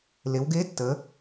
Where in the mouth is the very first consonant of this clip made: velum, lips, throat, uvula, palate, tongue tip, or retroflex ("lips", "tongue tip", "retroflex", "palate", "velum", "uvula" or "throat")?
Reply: tongue tip